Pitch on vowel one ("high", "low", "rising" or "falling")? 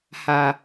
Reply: low